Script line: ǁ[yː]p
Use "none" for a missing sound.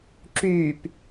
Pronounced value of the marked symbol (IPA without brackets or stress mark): yː